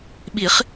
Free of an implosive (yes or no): no